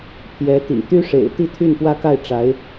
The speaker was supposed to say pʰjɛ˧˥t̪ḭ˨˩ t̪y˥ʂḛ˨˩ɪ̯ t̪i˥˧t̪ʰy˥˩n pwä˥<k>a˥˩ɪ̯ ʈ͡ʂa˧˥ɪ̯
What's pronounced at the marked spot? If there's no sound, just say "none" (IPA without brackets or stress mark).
k